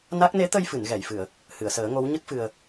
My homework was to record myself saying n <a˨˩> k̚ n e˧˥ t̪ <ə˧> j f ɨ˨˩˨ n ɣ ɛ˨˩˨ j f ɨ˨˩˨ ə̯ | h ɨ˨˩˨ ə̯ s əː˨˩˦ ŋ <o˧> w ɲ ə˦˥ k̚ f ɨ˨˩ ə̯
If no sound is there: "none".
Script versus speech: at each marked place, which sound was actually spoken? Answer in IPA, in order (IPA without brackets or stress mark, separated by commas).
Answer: a˦˥, ə˧, o˧˥